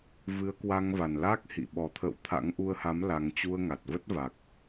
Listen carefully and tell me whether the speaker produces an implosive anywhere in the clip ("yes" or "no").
yes